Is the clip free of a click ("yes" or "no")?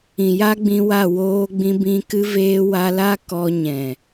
yes